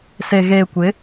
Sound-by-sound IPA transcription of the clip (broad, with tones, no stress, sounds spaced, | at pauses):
s e˨ ɣ eː˨ kʷ ɪ˨˦